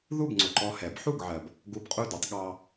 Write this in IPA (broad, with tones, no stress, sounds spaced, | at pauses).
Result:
ð u˥˩ b ŋ͡ǀ ʊ˩ ǃ ɔ˧ h ɛ˩˥ b ħ u˥˩ ɡ ʕ ɜ˩ b | ɡ u˧ b qʼ u˥˩ d u˧ tˤ ɠ ɑ˧